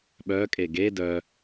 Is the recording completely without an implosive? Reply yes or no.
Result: no